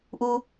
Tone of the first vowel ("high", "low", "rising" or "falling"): high